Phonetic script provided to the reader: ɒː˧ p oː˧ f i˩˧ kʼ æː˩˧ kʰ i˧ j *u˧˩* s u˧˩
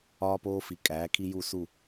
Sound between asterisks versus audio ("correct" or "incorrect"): correct